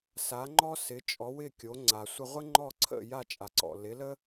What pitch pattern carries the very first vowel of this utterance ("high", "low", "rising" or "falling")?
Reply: rising